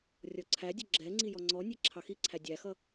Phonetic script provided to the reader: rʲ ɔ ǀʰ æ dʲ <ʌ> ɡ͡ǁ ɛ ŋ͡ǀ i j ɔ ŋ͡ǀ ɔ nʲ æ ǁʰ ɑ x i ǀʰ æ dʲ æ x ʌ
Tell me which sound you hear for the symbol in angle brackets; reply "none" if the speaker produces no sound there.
ʌ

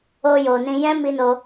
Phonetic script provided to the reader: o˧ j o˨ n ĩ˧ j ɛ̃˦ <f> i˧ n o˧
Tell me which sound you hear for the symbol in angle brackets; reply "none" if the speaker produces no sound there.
m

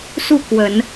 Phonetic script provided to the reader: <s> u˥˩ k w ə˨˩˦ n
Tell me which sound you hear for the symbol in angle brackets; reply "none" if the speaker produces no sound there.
s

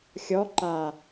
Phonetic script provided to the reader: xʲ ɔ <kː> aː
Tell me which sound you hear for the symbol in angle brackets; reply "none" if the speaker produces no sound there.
ǃ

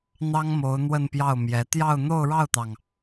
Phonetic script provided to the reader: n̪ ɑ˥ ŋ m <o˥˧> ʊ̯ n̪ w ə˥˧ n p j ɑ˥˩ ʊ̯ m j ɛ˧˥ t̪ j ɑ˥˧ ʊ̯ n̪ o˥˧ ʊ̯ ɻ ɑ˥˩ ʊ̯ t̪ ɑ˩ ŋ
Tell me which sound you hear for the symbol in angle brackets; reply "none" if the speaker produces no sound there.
o˧˥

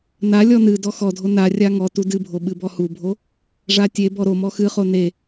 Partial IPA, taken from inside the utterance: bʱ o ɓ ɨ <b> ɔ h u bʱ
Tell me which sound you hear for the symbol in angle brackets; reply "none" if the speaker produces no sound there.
b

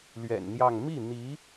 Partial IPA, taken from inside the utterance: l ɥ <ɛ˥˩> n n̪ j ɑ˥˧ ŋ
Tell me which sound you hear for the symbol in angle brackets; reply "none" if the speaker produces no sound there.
ɛ̰˨˩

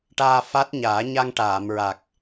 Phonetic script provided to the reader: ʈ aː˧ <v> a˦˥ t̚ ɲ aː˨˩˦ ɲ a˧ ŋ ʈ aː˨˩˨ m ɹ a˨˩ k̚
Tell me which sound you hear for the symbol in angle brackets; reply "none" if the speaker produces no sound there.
f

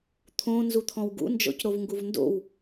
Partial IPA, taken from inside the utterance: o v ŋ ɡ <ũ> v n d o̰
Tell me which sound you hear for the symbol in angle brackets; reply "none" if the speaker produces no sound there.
u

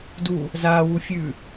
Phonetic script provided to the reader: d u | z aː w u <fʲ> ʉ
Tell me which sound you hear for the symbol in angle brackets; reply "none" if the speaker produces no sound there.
fʲ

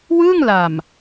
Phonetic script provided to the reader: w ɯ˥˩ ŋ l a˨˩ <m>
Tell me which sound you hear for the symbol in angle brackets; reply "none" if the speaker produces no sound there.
m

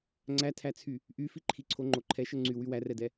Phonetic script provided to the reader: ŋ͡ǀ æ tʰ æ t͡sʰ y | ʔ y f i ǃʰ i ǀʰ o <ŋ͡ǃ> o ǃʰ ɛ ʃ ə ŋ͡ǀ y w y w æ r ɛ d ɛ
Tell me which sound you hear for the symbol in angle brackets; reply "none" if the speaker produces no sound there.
ŋ͡ǃ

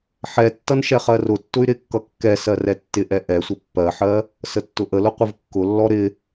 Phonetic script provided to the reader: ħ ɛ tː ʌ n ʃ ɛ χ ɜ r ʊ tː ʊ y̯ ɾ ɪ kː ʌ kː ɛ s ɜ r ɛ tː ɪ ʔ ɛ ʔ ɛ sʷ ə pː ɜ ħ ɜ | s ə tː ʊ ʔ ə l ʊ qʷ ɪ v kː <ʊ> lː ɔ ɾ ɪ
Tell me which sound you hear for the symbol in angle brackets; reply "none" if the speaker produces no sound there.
ʊ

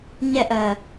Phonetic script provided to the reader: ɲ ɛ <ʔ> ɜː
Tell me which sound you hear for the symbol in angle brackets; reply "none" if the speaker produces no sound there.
ʔ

